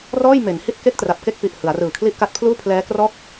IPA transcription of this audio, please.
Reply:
r ɔː˥˩ j m e˩˦ n h i˥˩ t̚ k e˥˩ k̚ t r a˨˩ p̚ k e˥˩ k̚ p i˨˩ ʔ h ɯ˩˦ a̯ r ɯː˨˩ kʰ l i˥˩ ʔ k a˥˩ t̚ pʰ l uː˥˩ pʰ l ɛː˦˥ k r ɔː˥˩ k̚

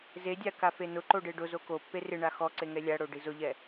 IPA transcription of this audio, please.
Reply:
z e dʲ a k a f e n ʊ ǃ o ɖ e ɖ ʊ z o k o pː e r ɪ ɳ a x ɔ ǀ e ŋ ɛ lʲ a ɽ o ɖ i z ʊ ʎ ɛ

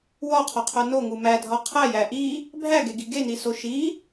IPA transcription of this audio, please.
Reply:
w ɒ qʰ ɒ qʰ o n o ŋ u m æ dʱ ɒ qʰ æ j æ ʔ i | bʱ æ ɡ e ɡ i ɡ e n i s o ʃ i

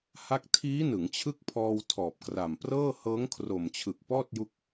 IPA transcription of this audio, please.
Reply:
h a˦˥ k̚ tʰ iː˦˥ n ɯ˩˦ ŋ t͡ɕʰ ɯ˥˩ k̚ pʰ ɔː˧ w tʰ ɔː˨˩ p̚ k r a˨˩ m p r ɤː˥˩ h ɤː˦˥ ŋ kʰ r o˨˩ m t͡ɕʰ ɯ˨˩ k̚ p ɔː˥˩ t̚ j u˦˥ k̚

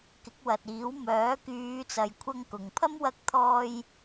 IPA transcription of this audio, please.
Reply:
k ɪ˨˥ k̚ w ɐ˨ t̚ iː˨˥ w m œː˨˥ k yː˨˧ t͡s ɐ˨ j kʷʰ ɐ˧ ŋ k ʊ˨ ŋ pʰ ɐ˥ m w ɐ˧ k̚ t̪ʰ ɔː˧ j

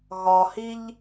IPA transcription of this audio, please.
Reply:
ɣ ɒ h i ʎ

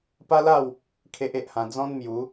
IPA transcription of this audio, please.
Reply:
p a˦ l a˥˧ w | kʰ e˦ ʔ e˦ ʔ h ã˧ d͡z ɔ̃˦ n m j u˨˦

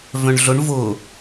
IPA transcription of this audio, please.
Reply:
v œ̃ ɳ ɮ ʊ ɳ v ʊ

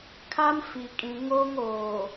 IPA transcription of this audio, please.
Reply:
kʰ a˦ m f i˨ kʼ ĩ˨ ŋ o˦ ŋ oː˨

